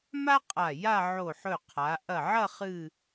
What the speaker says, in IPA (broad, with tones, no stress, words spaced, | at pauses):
ma˥qʼa˧˩ ja˥˧ ʕo˧˩ħɵ˧˩ qʰa˩˧ ʔɐ˧˩ʕɐ˥˧ χɨ˥˧